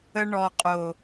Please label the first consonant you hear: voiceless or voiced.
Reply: voiced